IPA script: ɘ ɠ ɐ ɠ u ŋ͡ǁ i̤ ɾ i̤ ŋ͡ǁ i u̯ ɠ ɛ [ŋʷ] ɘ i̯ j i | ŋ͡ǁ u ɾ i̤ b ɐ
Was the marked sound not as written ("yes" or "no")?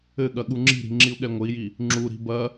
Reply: no